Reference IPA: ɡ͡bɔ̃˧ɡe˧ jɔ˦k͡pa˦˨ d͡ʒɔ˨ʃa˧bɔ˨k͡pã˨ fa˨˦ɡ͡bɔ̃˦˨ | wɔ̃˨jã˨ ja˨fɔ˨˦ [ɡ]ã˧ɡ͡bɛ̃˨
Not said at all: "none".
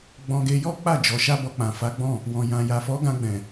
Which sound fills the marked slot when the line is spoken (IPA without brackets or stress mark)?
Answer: ɡ